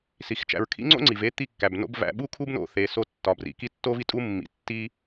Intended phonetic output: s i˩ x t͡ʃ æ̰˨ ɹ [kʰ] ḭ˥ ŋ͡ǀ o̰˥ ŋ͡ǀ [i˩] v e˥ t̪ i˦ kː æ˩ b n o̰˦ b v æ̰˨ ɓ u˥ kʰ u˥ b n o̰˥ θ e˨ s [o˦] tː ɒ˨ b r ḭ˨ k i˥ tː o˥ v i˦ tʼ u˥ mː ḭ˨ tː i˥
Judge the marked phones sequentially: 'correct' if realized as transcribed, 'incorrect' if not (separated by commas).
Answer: correct, correct, correct